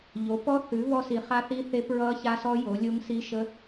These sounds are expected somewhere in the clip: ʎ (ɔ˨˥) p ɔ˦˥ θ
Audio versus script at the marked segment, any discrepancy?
yes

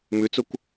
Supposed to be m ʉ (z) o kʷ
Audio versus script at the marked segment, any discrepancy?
yes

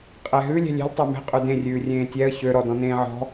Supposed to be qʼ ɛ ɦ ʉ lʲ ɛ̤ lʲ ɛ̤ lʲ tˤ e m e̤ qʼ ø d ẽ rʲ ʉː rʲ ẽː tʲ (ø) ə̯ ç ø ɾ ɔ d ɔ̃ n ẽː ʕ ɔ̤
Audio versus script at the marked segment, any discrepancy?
yes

